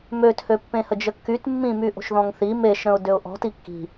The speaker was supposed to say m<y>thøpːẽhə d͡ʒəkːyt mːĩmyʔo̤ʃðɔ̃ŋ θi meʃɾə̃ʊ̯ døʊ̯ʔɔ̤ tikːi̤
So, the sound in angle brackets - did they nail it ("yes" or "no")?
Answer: no